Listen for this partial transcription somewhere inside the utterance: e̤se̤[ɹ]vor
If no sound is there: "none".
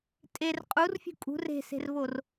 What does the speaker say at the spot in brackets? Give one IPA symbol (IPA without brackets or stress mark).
r